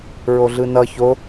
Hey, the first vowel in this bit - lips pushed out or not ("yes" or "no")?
yes